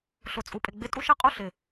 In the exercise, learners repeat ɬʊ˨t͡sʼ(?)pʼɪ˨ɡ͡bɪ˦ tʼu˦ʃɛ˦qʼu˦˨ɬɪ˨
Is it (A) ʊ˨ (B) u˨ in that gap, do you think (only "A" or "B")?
B